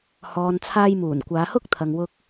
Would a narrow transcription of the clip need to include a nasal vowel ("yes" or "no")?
no